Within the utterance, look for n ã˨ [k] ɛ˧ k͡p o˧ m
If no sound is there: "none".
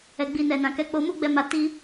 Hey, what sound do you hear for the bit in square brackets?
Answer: k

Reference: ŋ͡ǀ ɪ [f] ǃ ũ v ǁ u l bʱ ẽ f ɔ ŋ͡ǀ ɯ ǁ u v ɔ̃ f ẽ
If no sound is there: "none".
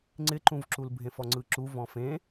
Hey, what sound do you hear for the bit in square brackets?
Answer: none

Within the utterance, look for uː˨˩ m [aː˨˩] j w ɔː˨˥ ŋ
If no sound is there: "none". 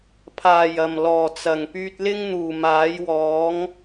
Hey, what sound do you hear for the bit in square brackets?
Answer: aː˨˥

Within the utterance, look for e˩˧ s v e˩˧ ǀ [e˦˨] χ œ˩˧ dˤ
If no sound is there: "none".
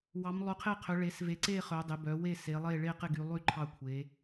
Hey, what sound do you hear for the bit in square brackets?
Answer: e˦˨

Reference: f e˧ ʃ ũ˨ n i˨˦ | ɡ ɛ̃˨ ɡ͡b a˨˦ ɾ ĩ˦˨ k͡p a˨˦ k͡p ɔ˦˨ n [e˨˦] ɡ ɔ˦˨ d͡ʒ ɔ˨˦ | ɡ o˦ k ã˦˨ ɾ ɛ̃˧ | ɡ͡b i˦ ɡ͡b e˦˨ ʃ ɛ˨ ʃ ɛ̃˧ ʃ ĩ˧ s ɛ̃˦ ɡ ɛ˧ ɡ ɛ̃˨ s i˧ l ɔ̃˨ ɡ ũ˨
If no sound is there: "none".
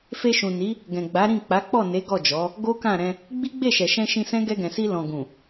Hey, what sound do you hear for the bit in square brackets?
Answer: e˨˦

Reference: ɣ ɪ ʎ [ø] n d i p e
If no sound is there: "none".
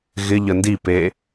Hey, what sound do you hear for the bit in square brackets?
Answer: ə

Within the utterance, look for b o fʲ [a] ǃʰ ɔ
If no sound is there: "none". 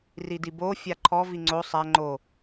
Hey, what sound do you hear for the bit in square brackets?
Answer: a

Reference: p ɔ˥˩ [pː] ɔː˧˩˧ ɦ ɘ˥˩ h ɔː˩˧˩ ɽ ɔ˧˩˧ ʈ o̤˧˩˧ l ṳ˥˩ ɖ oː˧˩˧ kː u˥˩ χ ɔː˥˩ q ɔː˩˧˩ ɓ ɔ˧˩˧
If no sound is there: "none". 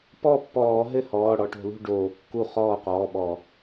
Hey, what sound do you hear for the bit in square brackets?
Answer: pː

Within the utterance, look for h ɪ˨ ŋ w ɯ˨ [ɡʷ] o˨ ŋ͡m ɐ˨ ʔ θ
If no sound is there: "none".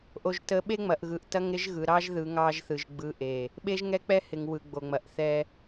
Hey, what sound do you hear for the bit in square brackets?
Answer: ɡ͡b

